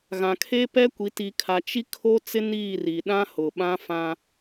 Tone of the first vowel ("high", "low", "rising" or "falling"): low